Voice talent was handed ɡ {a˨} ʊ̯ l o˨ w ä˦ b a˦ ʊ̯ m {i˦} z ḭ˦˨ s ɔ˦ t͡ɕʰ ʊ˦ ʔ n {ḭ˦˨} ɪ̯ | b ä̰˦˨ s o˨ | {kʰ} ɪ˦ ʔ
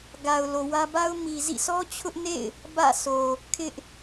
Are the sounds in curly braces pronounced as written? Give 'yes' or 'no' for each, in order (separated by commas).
yes, no, no, yes